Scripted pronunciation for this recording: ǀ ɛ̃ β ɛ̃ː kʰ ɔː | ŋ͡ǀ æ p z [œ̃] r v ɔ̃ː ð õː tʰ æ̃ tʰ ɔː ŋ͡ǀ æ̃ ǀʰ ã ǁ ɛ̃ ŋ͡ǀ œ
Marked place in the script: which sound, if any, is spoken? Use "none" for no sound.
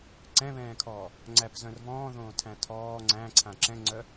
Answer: œ̃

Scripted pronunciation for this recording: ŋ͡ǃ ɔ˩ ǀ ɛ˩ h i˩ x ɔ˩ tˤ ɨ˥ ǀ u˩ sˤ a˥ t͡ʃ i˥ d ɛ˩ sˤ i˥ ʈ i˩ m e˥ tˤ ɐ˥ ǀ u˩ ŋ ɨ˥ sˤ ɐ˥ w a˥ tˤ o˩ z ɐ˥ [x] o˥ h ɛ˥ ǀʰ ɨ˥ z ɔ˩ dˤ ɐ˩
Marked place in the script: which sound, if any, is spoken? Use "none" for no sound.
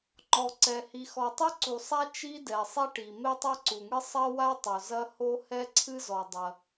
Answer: h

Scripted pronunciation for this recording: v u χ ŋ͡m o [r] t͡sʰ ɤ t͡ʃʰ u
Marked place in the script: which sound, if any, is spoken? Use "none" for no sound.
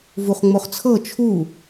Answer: χ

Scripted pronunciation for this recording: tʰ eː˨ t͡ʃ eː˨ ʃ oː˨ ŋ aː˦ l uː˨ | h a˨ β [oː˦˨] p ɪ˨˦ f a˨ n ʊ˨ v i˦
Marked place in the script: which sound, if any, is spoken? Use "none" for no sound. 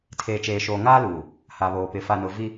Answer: oː˨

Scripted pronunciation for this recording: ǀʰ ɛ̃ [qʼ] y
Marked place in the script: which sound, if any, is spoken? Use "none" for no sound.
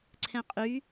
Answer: qʼ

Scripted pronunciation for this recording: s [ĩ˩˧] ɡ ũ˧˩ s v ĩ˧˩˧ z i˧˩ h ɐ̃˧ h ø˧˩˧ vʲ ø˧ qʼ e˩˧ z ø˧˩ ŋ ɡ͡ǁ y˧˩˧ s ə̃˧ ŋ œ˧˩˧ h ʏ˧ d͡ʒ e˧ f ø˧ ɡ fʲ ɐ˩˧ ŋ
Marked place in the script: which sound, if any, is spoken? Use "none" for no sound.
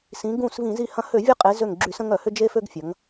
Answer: ĩ˩˧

